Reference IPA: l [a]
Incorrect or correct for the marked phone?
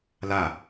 correct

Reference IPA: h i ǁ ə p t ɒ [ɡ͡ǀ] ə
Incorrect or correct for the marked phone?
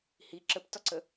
incorrect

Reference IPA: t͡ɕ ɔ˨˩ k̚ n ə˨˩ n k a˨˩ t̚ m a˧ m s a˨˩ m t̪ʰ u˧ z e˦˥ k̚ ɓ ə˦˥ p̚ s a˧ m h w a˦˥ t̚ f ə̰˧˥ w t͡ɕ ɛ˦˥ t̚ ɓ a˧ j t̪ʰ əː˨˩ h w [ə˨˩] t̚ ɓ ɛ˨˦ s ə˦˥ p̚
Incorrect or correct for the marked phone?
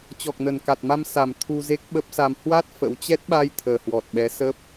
incorrect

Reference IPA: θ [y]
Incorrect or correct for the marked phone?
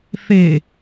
incorrect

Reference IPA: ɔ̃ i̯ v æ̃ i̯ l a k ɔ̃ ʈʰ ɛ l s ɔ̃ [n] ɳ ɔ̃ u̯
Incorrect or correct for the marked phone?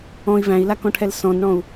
correct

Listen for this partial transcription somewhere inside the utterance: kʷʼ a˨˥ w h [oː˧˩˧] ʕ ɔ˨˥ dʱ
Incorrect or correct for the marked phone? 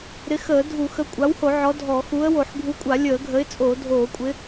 incorrect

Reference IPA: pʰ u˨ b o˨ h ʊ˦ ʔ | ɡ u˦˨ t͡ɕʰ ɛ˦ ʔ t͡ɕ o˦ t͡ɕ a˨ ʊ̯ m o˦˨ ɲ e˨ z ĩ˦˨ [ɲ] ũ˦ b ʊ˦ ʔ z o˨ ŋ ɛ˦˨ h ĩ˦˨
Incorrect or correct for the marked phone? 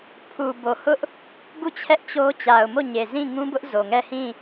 incorrect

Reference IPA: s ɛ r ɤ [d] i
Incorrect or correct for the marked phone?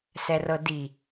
correct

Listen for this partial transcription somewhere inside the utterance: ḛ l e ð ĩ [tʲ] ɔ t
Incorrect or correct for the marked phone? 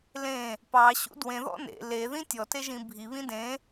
correct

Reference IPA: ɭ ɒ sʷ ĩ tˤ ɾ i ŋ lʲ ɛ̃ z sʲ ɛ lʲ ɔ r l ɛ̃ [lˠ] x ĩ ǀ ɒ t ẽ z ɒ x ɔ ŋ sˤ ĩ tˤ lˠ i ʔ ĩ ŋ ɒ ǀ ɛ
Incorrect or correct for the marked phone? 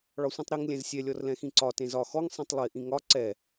incorrect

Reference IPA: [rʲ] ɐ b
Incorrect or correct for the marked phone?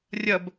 correct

